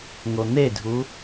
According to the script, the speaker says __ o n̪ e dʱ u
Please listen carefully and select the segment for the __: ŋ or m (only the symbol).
ŋ